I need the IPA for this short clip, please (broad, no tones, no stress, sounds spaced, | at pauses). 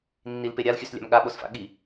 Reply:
nː i l p e ɾʲ a l xʲ ʉ s lʲ a̰ m ɠ a ɓ o s f a̰ ɠ i